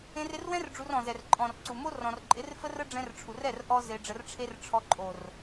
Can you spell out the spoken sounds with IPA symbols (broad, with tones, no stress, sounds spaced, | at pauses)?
ẽ˧ r ɪ˧ r w ɛ̃˦ r ɖ͡ʐ u˧ r ɔ̃˨ z ɛ˨ r ǃʼ ɔ̃˨ r ǀ u˨ m o˦ r ɔ̃˨ r ǃʼ ɪ˨˦ r f ə˦ r ə˦ ɖ͡ʐ ɛ̃˧ r ʈ͡ʂʰ u˨ r ɛ˦˨ r ʔ ɔ˦ z e˧ ɖ͡ʐ ə˧ r ʈ͡ʂʰ e˦ r ʈ͡ʂʰ ɔ˧ ǃʼ o˨ r